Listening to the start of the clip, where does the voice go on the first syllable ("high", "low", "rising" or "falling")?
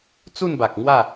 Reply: falling